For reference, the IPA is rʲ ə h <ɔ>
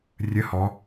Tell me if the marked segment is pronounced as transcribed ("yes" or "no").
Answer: yes